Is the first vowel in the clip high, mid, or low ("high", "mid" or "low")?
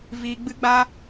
high